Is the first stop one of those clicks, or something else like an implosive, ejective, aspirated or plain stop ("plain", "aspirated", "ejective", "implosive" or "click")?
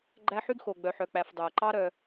click